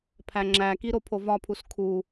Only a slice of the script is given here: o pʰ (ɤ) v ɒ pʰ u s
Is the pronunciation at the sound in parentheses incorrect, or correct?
incorrect